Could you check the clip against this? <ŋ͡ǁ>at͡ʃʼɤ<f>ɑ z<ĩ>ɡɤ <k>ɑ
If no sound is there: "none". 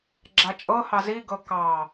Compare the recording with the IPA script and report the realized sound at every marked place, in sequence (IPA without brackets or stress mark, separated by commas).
ɡ͡ǁ, h, i, k